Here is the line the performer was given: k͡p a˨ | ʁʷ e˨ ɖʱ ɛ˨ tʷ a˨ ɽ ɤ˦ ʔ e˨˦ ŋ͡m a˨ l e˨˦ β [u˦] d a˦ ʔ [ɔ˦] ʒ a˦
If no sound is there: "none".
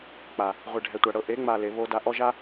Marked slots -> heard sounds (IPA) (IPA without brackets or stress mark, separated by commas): o˦, ɔ˦